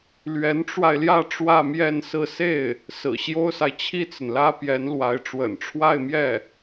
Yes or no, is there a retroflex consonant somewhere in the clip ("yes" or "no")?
yes